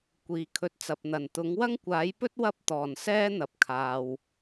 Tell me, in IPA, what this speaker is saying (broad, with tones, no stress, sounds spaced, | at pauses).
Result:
kʷ iː˨ kʰ ɵ˧ t̚ t͡s ɐ˨ p̚ n̪ ɐ˨˩ n t̪ ʊ˨˥ ŋ w ɐ˥ ŋ kʷ aː˨˥ j p ɵ˥ t̚ w ɐ˥ p̚ t̪ ɔː˨˩ n s ɛː˥ n̪ ɐ˨ p̚ kʰ aː˨ w